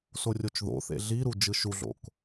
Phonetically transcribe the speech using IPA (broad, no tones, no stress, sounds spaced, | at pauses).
s o rʲ o t͡ʃ ð o̰ θ ḛ ɮ i ɾ u d͡ʒ ɯ ʃ u ɮ o̰ k